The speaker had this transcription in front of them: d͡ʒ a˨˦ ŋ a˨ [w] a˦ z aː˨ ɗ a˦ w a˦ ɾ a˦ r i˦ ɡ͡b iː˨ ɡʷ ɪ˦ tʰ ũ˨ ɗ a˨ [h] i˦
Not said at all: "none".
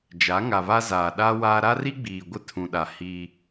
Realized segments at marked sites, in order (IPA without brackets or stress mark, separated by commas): β, h